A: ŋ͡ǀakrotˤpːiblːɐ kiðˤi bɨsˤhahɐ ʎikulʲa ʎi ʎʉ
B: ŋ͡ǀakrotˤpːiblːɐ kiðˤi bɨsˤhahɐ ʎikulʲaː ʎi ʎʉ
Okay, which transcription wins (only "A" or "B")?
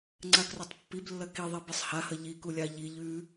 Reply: A